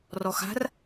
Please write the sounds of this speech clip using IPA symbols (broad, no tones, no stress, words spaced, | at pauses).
rɔxa̤r